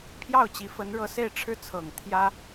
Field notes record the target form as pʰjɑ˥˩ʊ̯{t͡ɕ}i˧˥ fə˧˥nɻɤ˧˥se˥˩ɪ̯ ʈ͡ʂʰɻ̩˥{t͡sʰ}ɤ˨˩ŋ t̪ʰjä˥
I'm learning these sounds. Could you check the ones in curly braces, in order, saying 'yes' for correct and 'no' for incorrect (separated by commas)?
yes, yes